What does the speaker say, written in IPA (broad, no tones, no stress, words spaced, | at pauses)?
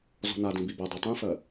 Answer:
zɔ̤nadĩ bibɛdˤɛ tˤĩfɜ